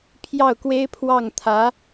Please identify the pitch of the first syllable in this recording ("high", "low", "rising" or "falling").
falling